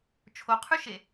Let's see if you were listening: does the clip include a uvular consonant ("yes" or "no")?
yes